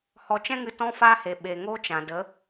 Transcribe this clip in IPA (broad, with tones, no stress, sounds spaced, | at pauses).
h ɔ˨ t͡ʃ ɛ̃˦ ŋ ɨ˧ t ɔ̃˦ f aː˦ h e˨ ɓ e˨ ŋ o˦ t͡ʃ ã˨ d ə˨˦